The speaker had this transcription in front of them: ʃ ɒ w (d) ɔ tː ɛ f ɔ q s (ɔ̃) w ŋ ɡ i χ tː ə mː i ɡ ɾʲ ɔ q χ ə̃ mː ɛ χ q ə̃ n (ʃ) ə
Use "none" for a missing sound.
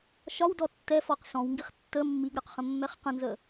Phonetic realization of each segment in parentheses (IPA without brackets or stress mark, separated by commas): d, ɔ̃, z